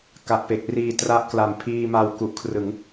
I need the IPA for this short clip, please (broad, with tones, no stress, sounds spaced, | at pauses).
k a˨˩ ʔ p e˨˩ k̚ r iː˨˩ t r a˦˥ ʔ k l a˨˩ m pʰ iː˧ m a˧ w k u˨˩ ʔ kʰ r ɯ˩˦ ŋ